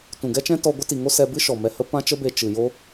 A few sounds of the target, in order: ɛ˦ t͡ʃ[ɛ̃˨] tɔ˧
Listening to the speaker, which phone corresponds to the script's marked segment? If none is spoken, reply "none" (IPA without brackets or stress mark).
ɛ̃˦